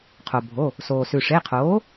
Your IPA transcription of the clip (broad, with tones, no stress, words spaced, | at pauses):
qʰo˩ bʱo˩˧˩ | soː˩sʉ˩ʂe˩˧˩ qʰoː˩˥